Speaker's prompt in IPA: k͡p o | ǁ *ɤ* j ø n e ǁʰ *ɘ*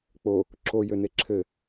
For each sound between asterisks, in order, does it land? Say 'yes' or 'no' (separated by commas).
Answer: no, yes